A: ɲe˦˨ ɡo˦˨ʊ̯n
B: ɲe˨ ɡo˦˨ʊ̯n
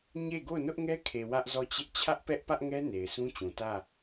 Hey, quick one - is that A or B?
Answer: A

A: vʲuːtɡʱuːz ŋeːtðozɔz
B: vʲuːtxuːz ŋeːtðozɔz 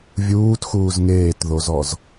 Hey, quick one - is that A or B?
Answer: B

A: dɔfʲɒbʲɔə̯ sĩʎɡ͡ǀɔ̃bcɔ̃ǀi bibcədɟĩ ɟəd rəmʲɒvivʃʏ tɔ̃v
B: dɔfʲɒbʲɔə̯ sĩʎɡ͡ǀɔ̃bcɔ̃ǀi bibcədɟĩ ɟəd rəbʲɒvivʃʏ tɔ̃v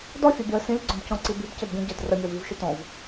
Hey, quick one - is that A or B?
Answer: A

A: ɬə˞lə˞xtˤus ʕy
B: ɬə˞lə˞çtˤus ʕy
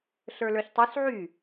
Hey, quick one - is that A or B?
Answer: B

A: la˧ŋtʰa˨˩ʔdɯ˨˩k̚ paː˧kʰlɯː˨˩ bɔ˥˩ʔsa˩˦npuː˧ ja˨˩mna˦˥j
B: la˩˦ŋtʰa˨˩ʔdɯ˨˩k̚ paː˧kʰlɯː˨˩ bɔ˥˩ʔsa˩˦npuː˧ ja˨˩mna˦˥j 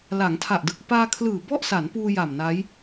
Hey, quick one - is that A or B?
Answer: B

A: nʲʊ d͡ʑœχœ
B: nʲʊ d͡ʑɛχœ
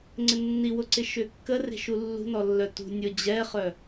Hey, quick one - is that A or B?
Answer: B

